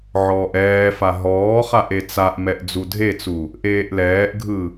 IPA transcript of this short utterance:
ʕɔːʔɛːfa ɦɔːχaʔ et͡saʔmɛʔ d͡zudʱet͡su | ʔeːʔlɛːʔɡʱɯ

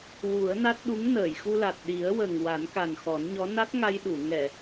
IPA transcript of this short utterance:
wu˨˩˦ə̯na˦˥t̚ ɗu˧˥ŋnəː˨˩˨jxu˧la˨˩t̚ ɗi˨˩˦ə̯wə˨˩ŋ wa˨˩˦nka˨˩nxɔ˨˩˦nɲɔ˧˥ na˦˥t̚ŋa˧jɗu˨˩˨ ŋɛ˨˩˨

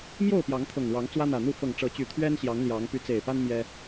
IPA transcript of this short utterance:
mjo˥˨ʊ̯pjɑ˨˦ŋt̪ʰɤ˨˩ŋɻɑ˨˦ŋ t͡swä˦n̪ä˨˩n̪u˥˨ fɤ˨˩ŋʈ͡ʂɤ˨˦t͡ɕy˨˩ t̪ʰɥɛ˦nɕjɑ˨˦ŋ ljɑ˨˦ŋ py˨˦t͡se˨˩ɪ̯pa˦n mjɛ˦

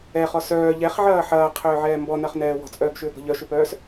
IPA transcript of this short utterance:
ɛχɔ sœː ʎɛχʕɐː ħɐːqʰʏːʕɛː mbɔnɐχnɛː wɔ̤t͡sʼœːɡʃʏːɡɔ̤ ʎœʃʏpœːs

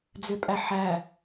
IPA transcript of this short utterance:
d͡zøpʼæħæ

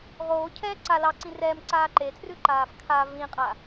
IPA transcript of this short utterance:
ʁoːcʰɛː ǀa lɑǀĩ rɛːmǀaː ǃetʰrʉǃaːf kʰa vĩqʼa

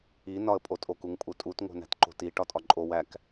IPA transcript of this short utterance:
i nɒə̯pʼotʼok uŋpʼutʼut ŋo̤næ̤tǃo̤ti ʈɒtʼɒǃʼo wæk

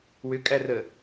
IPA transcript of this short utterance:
wʏkʼærə

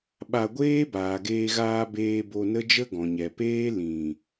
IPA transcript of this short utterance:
ɓa˧ɡʷeː˦ baː˨ɡeː˧ɣaː˧beː˧ bo˧nə˦d͡ʒə˦ ɡɔ̃˨ɲɛ˨ peː˦ lĩ˨

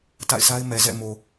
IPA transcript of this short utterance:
ta̰˦˨ɪ̯sʰa˦ɪ̯mɛ˨ zɛ̰˦˨mo˨

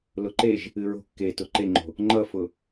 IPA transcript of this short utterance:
lʊǃeʒ | ɨɹo̤ kːetʊ ǃeŋ͡ǃo̤ | ŋ͡ǃʌfʊ

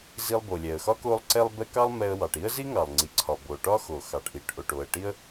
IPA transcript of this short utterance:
zi˧lˠbo˩lʲɛ˩ə̯xɒ˥ ko˧lˠǀɛ˧lˠ bɛ˧ kɑ˥lˠmɛ˧ə̯wɑ˩ʈ i˥ə̯zi˥ ŋɑ˩lˠŋ͡ǀi˩ǀʰɒ˩ bo˩ʈɒ˥xo˩ xɑ˩ʈʔi˩ʈ ʔo˩ʈo˩ə̯ʈi˧ə̯

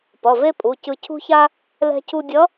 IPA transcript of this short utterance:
pʌ˩˧˩ve˥pʼu˩˧˩cɯ˧ cʰṳ˥ça˥ | lɛ̤˧cʰu˧dʲʌ˧˥

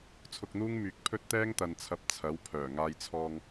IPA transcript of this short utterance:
t͡sʰʊ˧k̚n̪uː˥ŋ myː˨˥k̚pʰɵ˥t̚ t̪ɛː˥ŋt̪ɐ˨nt͡sʰɐ˨˥p̚ t͡sʰɐ˨˥w pʰœː˨˩ ŋaː˧jt͡sʰɔː˧ŋ

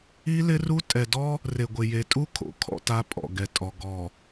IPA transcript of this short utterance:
i˦lɪ˦ru˦ tʼɛ˨dɔ˦ | re˨ɡʷɪ˨je˨tʼu˦ kʰo̰˨kʰɔ̰˦ta˦ pʼɔ̰˨ɡɛ˨tʼɔ˨ ɡɔ˨

